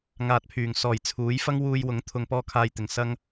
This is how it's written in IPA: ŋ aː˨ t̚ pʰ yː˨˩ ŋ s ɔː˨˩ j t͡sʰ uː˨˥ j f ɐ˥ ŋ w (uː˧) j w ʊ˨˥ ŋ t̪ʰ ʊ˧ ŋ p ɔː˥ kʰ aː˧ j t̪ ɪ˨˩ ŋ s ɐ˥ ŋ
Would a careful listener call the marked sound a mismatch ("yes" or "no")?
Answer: no